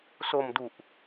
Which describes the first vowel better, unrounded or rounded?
rounded